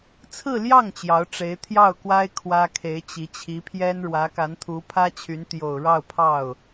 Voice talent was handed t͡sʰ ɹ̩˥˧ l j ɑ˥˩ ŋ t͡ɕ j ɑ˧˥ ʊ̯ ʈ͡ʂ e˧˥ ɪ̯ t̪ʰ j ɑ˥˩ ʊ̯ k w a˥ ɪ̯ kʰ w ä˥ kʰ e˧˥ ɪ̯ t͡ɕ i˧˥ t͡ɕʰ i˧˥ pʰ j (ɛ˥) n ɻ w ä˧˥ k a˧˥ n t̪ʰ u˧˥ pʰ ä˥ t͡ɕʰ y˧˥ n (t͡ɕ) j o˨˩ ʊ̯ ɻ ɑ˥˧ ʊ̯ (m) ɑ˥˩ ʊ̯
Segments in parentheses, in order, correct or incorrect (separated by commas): correct, incorrect, incorrect